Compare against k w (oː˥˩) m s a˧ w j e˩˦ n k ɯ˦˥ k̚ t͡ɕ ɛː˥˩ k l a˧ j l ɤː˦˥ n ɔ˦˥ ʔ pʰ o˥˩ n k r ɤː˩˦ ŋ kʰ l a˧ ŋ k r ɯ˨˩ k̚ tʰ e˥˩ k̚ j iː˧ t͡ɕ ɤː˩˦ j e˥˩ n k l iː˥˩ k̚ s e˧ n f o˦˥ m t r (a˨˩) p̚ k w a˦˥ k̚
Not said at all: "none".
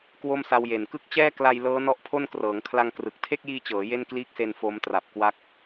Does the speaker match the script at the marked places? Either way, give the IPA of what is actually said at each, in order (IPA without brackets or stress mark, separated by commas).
o˥˩, a˨˩